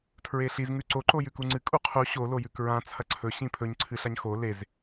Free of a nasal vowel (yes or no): no